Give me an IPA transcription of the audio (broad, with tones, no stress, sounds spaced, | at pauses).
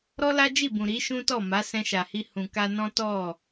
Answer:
ɾ ɔ˦ l a˦ d͡ʒ i˦˨ b ũ˨ ɾ i˨˦ ʃ ũ˦ t ɔ˦˨ m a˨˦ s ɛ̃˧ ʃ a˨ h i˧ h ũ˨ k a˧ n ɔ̃˦ t ɔ˦˨